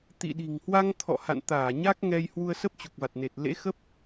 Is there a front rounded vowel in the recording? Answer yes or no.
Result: no